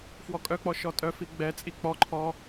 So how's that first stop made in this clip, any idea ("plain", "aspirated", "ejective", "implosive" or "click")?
ejective